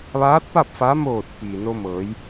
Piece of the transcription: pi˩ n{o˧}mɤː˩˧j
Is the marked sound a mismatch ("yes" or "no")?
no